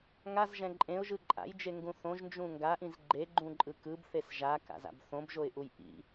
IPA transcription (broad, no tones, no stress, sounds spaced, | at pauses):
ŋ a z ʒ ɛ̃ ǃʼ ẽ ʊ̯ ʒ ɯ ǃʼ a̰ j d͡ʒ e ŋ ɡ ũ θ õ ʒ n d͡ʒ ũ ŋ ɡ a ʔ ĩ z ɡ͡ǃ e ɡ͡ǃ ũ ǃʼ ɯ k ɯ b θ e s ʒ a k a̰ z a̰ b θ õ b ʒ o ɪ̯ ʔ u j ʔ ḭ